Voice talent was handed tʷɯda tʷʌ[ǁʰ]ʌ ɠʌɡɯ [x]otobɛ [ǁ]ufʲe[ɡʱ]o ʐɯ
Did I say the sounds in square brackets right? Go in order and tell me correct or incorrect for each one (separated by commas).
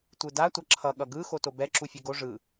correct, correct, correct, incorrect